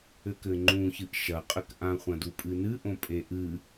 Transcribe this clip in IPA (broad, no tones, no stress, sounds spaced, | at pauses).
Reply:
ɘ k ɘ ŋ͡ǃ ũ ç ɨ ʔ ʃ ɐ qʼ ɘ k ʔ ã χʷ ɐ̃ d u pʼ ɨ n ɨ ʔ õ pʼ e ʔ ɨ